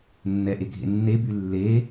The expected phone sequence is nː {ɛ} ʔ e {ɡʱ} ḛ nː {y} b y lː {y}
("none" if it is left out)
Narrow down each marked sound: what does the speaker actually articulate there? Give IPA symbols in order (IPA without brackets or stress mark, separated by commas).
ɛ, ɡʱ, e, e